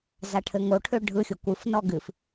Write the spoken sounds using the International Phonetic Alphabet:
z a ʈʰ ɘ ŋ o ʈʰ ø ɖʱ ɯ xʲ o kʷ ɨ f n ɔ ɡ ɨ f

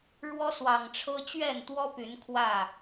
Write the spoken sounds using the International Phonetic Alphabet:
ɻ w ɔ˦ s w ɑ˨˩ ŋ ʈ͡ʂʰ ɤ˦ t͡ɕ ɥ ɛ˥˨ n t̪ w ɔ˦ p y˨˦ n kʰ w ä˥˨

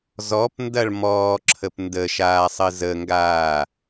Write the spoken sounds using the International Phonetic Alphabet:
z ɔ p n d ɐ ɭ m ɔː ǁʰ ə p n d ə ʃ aː sˤ ɘ z ə ŋ ɡ aː

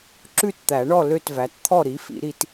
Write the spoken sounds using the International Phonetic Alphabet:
ǁ ʉ˥˨ t t̪ æ˨˩˦ ɳ ɔ˥˨ l ø˥˨ t v æ˩˥ t t̪ʰ ɔ˥˨ ɾ i˩˥ f ḭ˨˩˦ ɾ i˦ t

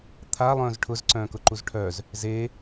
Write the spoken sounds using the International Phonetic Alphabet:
t̪ʰ a lˠ œ̃ː z ʈʰ ʊ z ǀ œ̃ː k ʊ ǃ u z ʈʰ œ z | z e

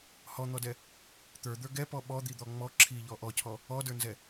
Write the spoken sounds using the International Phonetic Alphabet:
h ɔ n̪ ɔ d ɛ | t̪ ə˞ d̪ ə˞ ɡ ɛ p ɔ ɓ ɔ d̪ i d̪ ɔ ŋ͡m ɔ ǁʰ i ʎ ɔ ʔ ɔ cʰ ɔ | ɔ d ə˞ n z ɛ

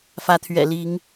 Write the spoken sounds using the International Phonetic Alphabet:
f ä˨˦ t̪ʰ ɥ ɛ̰˨˩ l i˨˦ ŋ

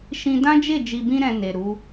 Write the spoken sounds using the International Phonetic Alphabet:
ʃ ĩ˧ d ã˦ d͡ʒ e˦˨ d͡ʒ i˧ b ĩ˦ ɾ ɛ̃˧ n e˨ ɾ u˨˦

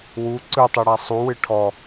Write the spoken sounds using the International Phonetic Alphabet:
w u ǀ ɯ tˤ u ɽ a sˤ u w ɨ ʈʰ ɔ

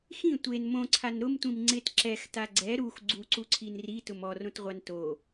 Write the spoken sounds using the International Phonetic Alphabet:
x ĩ tʷ e n m õ ǀʰ a n ɾ ʊ m tʷ ĩ m ŋ͡ǀ ɪ t ǁ ɛ x t a ɡ͡ǀ ɛ ɾ u x ɡ͡ǀ u ǀ u ǀʰ i n r i t ʊ m ɔ r õ t ʁʷ a n t o

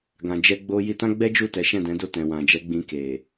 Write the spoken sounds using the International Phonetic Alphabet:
ɡ ã˨ d͡ʒ ɛ˧ ɡ͡b o˧ j i˧ t ã˦ ɡ͡b ɛ˦ d͡ʒ u˦˨ t ɛ˨˦ ʃ ɛ̃˦˨ d ɛ̃˨˦ d o˦˨ t ɛ̃˨ w ã˨ d͡ʒ ɛ˨˦ ɡ͡b ĩ˧ k e˨

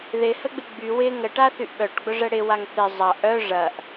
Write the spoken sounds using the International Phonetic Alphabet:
ð ɪ h ə ɡ͡b ɪ ɡ͡b y w ɪ ŋ ə ʈ a θ y ʔ ɓ œ ʈ ɡ͡b ʊ ʐ ə ɽ ɪ w a ŋ θ ɪ zˤ ɐ ʔ œ ʐ ɐ ʔ

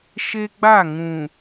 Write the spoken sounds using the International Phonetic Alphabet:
ʃ e˦ ɡ͡b a˦˨ ŋ ũ˨

